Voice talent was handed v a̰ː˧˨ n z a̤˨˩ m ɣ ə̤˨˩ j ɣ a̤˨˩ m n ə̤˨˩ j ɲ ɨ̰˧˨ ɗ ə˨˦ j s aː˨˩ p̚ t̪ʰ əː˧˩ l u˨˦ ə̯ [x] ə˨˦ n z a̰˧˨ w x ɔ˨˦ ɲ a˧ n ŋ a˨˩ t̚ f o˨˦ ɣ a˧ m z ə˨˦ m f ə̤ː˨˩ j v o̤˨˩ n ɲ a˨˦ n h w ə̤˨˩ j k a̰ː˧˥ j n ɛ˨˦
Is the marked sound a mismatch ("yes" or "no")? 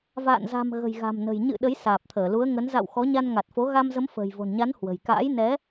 yes